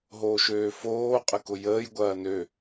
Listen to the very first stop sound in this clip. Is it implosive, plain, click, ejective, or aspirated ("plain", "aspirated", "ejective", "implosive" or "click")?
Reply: ejective